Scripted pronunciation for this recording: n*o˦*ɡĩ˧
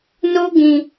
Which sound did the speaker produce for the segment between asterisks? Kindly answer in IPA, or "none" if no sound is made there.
o˦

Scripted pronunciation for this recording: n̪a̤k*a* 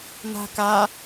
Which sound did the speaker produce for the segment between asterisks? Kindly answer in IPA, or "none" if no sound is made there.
a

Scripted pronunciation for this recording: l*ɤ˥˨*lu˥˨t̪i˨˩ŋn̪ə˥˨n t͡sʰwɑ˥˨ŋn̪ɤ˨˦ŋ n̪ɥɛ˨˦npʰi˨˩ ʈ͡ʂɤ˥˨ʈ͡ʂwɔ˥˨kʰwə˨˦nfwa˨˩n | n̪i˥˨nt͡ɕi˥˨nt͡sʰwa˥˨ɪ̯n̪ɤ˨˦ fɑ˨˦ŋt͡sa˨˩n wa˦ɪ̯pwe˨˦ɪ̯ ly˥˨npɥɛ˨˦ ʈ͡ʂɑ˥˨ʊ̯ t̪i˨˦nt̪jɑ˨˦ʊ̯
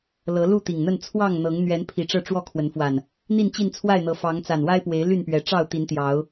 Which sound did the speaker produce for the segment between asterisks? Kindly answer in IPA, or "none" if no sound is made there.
ɤ˨˦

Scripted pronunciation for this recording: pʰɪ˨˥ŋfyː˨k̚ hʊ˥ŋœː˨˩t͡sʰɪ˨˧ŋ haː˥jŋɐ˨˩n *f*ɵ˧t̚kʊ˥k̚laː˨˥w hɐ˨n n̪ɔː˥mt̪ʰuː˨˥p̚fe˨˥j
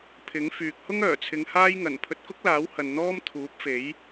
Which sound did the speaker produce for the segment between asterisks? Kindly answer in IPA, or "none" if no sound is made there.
pʰ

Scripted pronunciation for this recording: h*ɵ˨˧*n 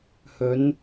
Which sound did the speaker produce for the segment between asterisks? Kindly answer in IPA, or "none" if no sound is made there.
ɵ˨˧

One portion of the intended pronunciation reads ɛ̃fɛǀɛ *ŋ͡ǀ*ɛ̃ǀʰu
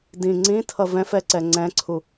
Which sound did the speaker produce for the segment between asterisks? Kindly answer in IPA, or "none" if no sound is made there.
ŋ͡ǀ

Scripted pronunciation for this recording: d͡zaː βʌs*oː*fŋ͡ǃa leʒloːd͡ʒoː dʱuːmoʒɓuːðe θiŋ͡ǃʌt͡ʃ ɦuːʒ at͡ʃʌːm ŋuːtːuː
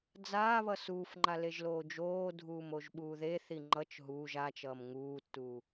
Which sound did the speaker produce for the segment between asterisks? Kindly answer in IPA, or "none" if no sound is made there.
uː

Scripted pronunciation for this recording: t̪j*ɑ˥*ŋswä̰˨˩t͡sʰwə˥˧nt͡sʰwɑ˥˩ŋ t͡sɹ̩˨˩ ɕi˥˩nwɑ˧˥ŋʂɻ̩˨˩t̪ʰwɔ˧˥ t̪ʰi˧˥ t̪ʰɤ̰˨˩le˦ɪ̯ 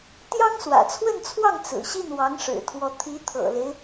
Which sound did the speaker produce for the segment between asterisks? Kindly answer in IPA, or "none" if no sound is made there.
ɑ˥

